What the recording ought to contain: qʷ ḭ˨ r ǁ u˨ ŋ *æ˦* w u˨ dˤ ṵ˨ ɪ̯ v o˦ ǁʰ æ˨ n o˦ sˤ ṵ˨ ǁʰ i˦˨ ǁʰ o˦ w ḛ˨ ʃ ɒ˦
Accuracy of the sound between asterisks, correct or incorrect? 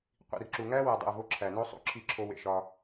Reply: correct